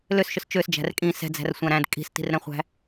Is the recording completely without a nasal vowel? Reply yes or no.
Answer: no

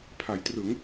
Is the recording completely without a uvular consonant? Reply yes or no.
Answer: yes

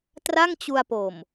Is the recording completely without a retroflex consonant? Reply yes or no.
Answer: yes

